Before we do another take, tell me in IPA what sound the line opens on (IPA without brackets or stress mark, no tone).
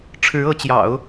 ʈ͡ʂʰ